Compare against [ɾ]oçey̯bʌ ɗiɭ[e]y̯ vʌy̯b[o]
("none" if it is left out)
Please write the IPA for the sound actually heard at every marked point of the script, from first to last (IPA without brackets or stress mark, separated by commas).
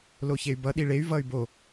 l, e, o